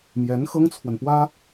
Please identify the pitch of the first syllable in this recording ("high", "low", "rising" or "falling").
rising